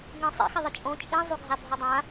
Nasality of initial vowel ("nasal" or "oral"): nasal